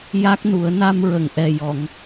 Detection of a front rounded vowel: absent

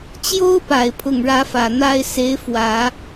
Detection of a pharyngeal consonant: absent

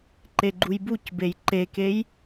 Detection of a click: present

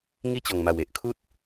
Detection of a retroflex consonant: absent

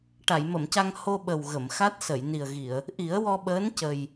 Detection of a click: absent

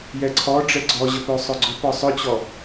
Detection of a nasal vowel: absent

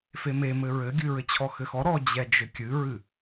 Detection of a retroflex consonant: absent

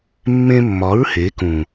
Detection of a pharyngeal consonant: absent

